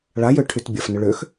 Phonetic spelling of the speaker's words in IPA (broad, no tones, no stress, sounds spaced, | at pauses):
ɭ a j ø ʈʰ y t bʲ ɐ f n ʏ ɭ ø x